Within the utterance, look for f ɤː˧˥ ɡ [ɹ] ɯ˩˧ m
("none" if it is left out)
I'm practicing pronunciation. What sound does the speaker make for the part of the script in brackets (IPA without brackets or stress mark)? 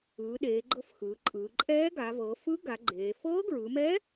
ɹ